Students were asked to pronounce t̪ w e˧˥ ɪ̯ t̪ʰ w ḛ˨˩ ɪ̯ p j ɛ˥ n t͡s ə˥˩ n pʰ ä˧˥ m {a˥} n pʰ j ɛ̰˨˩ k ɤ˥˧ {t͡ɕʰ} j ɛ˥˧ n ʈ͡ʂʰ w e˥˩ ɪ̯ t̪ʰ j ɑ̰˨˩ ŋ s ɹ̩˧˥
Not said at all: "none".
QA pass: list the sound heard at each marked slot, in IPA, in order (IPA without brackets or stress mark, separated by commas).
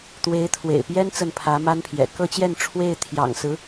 a˥, t͡ɕ